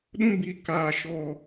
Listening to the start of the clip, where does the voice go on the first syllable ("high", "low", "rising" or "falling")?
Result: high